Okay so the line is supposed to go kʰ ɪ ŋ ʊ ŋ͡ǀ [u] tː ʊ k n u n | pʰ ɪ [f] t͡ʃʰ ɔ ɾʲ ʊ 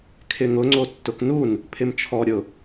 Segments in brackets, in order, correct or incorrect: incorrect: o, incorrect: m

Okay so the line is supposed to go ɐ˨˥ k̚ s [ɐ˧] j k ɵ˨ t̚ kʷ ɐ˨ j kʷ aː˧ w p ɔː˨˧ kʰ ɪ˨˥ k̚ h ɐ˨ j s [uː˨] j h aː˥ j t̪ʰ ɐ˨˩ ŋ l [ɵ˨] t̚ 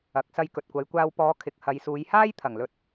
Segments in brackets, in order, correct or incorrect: correct, incorrect: uː˨˧, correct

